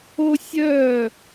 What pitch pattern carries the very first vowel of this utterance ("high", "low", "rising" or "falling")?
high